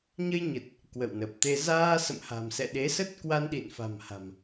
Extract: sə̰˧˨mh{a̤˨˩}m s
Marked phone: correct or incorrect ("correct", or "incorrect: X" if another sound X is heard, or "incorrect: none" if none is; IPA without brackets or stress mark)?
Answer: correct